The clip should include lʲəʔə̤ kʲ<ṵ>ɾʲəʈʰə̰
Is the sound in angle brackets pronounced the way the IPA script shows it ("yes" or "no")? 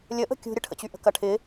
no